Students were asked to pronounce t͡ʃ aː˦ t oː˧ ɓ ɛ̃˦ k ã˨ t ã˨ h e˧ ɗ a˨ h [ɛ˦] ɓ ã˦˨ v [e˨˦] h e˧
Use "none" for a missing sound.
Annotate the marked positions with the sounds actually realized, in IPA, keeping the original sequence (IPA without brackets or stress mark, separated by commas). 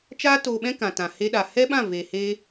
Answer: ɛ˦, e˨